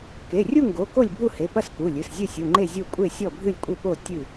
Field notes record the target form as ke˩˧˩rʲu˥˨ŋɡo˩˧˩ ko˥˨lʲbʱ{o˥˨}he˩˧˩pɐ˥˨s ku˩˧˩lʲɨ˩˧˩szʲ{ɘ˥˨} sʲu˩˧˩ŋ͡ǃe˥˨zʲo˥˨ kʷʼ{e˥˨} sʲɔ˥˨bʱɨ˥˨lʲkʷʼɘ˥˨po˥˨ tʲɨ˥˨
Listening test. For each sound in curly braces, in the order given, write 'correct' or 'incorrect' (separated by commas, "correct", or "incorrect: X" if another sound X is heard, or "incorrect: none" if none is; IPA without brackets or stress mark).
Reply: incorrect: u˥˨, correct, correct